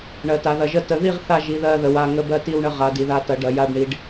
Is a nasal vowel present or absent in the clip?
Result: absent